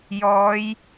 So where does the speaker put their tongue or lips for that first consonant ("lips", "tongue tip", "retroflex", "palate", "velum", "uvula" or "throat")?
palate